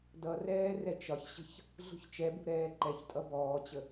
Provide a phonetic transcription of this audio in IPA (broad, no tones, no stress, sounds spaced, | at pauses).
d ʌ r ɛː r ɛ t͡ʃ ɒ ç ɕ ə̤ ç | ɮ ṳ ç t͡ʃ ɛ b ṳ ɾ ɛː ǃ ɛ ç tʼ ʌ b ɔː t͡ɕ ə